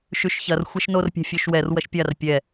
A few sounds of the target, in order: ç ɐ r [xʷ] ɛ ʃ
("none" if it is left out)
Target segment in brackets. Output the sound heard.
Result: xʷ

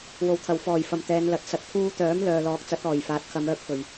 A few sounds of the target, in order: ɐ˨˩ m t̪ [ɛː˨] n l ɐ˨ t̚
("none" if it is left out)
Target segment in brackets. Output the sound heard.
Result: ɛː˨˧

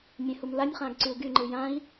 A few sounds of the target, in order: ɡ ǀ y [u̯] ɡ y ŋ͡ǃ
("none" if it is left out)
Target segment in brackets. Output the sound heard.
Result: u̯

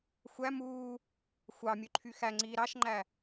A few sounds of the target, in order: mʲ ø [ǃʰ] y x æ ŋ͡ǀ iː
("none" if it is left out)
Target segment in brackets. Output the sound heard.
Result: ǃʰ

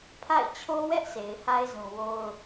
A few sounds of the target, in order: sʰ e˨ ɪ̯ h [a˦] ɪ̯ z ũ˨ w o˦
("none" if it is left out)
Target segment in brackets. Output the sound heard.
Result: a˦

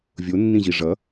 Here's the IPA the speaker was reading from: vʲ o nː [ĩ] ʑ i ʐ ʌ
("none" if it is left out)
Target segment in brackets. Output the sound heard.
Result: ĩ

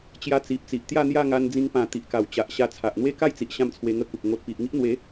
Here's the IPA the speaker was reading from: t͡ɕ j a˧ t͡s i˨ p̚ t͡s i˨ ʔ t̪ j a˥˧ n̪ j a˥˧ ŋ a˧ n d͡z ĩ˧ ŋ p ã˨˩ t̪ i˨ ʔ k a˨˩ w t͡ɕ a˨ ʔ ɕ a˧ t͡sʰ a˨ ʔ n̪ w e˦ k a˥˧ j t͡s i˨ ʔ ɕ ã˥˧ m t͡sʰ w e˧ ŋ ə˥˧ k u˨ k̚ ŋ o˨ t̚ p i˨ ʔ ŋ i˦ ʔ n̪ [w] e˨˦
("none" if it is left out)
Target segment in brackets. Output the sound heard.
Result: w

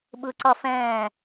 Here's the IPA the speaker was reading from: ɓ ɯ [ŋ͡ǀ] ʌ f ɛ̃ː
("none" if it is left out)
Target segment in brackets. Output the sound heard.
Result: ǀ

